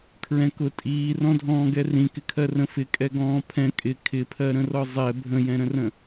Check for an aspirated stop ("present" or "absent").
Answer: present